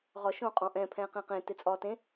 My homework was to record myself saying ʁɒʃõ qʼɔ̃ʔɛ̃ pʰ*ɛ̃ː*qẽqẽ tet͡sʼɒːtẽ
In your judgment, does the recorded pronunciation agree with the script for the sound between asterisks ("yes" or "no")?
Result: yes